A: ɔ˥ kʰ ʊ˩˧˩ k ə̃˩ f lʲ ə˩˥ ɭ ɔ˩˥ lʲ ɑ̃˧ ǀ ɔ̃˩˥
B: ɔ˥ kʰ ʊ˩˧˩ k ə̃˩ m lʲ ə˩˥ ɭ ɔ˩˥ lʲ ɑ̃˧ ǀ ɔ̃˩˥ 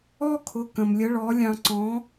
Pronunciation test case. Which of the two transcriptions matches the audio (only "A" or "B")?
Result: B